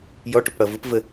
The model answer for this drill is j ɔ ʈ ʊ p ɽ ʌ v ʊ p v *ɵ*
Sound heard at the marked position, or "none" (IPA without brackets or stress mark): ə